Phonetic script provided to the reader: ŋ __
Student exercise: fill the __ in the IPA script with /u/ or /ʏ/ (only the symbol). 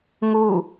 u